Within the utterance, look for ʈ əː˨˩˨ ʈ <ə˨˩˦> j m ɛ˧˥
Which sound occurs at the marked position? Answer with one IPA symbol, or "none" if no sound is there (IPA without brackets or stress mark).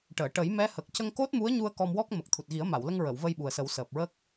ə˨˩˦